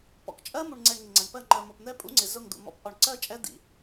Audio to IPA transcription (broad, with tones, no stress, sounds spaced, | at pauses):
p ɔ̰˨ k t͡ʃʼ ɜ˦ m u˨ ɳ ŋ͡ǀ ɛ˨ ɳ ŋ ɪ˨ ŋ͡ǀ ʌ˨ ɳ p ɜ˦˨ ŋ͡ǃ ɜ˨ m ɔ˨ p n̪ ɛ˦ pʼ ṵ˦ ŋ͡ǀ ɪ˨ z ʊ˦˨ ŋ d̪ ṵ˨ m ɔ̰˦ p ʔ ɔ˨ ɳ ǀ ɜ˦ t͡ʃʼ ɛ˦ d̪ ḭ˨